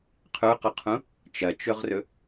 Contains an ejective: no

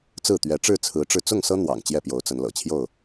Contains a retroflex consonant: yes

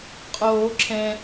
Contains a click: yes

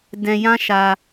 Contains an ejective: no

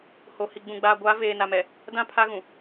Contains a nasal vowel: yes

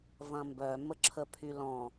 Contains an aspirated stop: yes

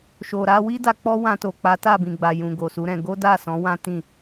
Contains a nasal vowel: yes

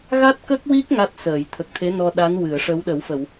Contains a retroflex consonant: yes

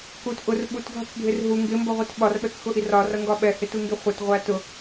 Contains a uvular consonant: yes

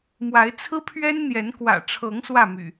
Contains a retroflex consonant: yes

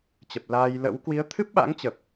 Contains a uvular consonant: no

